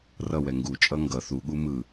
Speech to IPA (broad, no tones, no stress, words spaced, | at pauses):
rʌwɛ ŋɡut͡ʃʼʌ ŋɡʌ θuɠu mɯ